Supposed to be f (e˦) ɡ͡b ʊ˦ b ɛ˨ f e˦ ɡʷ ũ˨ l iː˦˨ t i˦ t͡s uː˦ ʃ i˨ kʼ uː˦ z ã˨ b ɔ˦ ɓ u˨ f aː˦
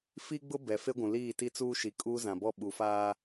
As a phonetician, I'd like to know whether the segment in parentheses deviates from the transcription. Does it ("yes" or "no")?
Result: yes